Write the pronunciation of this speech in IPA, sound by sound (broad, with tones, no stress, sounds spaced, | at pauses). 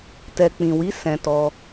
t ɛ˨ k͡p ĩ˨ w i˨˦ s ɛ̃˧ t ɔ˦